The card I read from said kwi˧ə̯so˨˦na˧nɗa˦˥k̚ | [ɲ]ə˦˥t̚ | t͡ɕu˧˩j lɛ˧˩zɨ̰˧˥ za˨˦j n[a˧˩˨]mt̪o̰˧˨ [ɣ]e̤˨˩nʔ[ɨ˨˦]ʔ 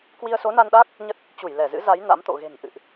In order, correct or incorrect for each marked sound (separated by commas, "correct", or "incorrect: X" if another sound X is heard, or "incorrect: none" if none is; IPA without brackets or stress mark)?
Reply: correct, incorrect: a̰˧˥, correct, incorrect: ɨ̰˧˨